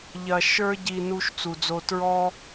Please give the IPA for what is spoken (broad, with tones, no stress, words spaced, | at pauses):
ʎɐ˨ ʃə˞˦ ɟi˨ nu˦ʃt͡su˨d͡zo˦ tɹɔ˦